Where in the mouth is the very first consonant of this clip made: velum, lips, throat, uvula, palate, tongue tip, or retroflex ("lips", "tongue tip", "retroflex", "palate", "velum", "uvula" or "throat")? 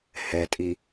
throat